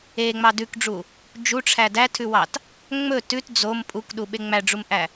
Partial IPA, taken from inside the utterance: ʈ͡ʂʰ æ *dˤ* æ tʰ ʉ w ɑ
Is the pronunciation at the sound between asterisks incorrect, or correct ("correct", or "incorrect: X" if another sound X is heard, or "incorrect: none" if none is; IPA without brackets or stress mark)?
incorrect: d